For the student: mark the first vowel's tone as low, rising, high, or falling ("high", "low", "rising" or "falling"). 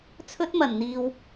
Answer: high